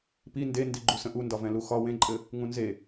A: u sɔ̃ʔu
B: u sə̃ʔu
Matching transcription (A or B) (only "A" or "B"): B